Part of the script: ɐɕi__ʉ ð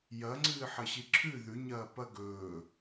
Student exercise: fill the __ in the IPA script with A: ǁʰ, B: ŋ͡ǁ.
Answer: A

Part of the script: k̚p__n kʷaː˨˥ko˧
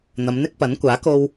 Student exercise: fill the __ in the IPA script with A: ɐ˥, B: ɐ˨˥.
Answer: B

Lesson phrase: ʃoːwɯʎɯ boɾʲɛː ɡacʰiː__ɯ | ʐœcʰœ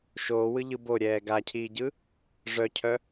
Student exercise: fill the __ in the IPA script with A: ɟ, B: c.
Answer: A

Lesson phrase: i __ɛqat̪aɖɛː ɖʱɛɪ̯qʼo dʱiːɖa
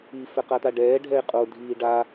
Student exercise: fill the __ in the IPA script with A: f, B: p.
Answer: A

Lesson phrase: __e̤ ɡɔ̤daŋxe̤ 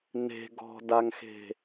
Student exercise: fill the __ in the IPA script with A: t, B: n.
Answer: B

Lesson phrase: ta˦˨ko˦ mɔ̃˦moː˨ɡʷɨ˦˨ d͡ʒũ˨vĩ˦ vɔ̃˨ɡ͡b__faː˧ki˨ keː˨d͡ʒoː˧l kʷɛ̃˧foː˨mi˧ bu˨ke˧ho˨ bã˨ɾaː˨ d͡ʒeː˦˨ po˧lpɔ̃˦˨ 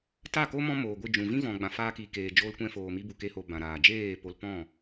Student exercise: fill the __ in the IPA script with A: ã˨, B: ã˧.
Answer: A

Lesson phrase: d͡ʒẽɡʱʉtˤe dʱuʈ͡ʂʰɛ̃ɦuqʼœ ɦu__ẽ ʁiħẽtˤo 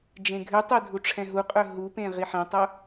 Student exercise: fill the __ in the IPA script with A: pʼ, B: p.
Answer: B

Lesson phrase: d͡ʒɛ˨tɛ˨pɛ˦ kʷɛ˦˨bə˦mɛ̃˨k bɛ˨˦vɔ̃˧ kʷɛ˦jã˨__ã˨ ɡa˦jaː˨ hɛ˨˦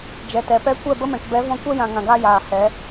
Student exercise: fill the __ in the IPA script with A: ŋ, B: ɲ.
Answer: A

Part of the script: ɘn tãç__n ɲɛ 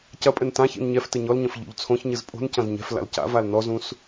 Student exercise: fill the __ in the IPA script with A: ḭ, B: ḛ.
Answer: A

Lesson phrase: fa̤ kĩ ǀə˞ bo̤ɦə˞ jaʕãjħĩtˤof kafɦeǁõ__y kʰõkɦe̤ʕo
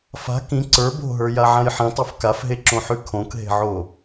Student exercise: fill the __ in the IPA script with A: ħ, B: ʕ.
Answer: A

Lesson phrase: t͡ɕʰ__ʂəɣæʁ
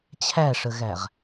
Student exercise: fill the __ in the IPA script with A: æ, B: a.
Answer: A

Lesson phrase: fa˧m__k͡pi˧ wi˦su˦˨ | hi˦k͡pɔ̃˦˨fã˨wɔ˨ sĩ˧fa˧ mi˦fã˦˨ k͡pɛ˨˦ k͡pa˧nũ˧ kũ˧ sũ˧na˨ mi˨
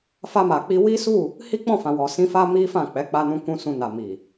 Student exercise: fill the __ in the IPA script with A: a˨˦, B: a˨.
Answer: B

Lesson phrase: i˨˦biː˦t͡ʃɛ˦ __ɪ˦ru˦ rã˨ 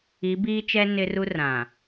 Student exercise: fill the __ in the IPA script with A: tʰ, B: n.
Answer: B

